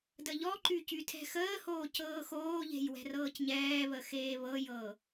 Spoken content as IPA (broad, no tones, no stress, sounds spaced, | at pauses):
d ə ʎ ɔ ǃ y c y tʰ ɛ̤ x əː h oː c ɤː x oː ʎ e̤ j w ɛ̤ r ɤː c ɲ ɛː β ə x eː β ɤ j ɤ